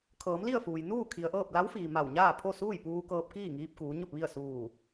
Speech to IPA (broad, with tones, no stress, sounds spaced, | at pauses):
kʰ ɤː˩˧ m l i˥˨ ə̯ f uː˩ j n uː˥˨ kʰ i˩ ə̯ ʔ ɤː˥˨ p̚ l a˧˥ w f iː˩ m a˧˩ w ɲ aː˥˨ pʰ o˥˨ s uː˥˨ j p uː˧ k ɤː˧ p̚ k iː˥˨ ŋ iː˧ p̚ k uː˩˧ ɲ o˥˨ p̚ ʋ i˥˨ ə̯ s uː˧˩